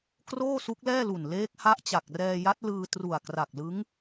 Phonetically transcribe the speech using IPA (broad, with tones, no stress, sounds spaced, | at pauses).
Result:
k r oː˥˩ s u˦˥ k̚ l ɛː˥˩ l u˨˩ n l eː˦˥ k̚ h a˦˥ ʔ t͡ɕ a˨˩ k̚ r ɛː˧ j a˦˥ t̚ l ɯː˧ t r u˨˩ a̯ k r a˨˩ k̚ l ɯ˦˥ ŋ